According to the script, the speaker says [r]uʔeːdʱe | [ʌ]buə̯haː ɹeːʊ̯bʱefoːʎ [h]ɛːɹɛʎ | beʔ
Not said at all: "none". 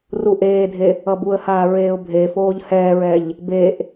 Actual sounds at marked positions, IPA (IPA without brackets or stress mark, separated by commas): r, ʌ, h